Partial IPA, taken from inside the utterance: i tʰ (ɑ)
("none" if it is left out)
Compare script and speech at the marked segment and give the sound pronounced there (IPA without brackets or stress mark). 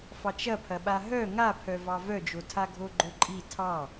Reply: ɑ